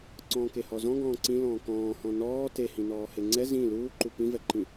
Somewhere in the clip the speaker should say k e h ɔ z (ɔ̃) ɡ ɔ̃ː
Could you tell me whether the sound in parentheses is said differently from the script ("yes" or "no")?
no